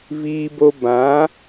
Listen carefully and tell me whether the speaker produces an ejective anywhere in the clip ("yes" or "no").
no